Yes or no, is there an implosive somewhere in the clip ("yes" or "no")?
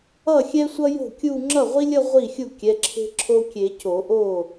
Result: no